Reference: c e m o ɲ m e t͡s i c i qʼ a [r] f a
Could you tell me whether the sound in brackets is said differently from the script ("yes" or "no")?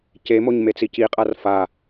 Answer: no